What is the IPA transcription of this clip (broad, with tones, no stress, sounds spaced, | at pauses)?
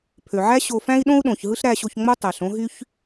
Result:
pʰ ø˩ ʕ æ˥ ɕ o˧ f æ̃˥ i̯ ɗ õ˥ u̯ ɗ õ˩ ç ɦ ɯ˥ ɬ ɾ æ˧ ɕ o˧ ç ŋ͡m o˥ tˤ æ˩ ɬ õ˧ ɦ y˧ ç